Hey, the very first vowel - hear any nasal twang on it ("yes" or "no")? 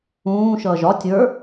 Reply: yes